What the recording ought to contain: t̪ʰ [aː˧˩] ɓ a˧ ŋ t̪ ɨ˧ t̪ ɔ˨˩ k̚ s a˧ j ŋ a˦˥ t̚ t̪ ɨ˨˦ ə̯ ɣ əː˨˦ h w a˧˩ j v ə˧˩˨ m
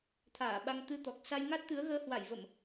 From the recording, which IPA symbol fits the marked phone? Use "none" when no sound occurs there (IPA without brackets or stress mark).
aː˧˩